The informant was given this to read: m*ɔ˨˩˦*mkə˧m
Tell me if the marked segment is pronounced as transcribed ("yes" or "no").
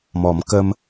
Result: yes